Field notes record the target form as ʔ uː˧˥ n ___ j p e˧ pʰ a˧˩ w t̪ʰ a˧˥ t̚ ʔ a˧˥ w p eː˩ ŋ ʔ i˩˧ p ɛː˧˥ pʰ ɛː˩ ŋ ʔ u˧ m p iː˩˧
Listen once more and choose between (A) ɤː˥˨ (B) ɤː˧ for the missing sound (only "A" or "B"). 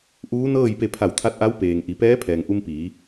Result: A